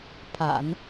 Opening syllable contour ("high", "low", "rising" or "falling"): low